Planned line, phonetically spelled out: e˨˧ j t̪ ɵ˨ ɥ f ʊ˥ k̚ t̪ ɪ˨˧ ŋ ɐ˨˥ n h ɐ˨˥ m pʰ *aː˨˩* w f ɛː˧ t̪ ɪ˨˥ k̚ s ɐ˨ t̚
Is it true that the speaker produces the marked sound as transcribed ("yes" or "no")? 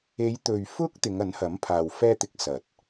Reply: no